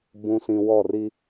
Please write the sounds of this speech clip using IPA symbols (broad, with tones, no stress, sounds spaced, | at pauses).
b ũ˨ s ĩ˨ w ɔ˦˨ r i˦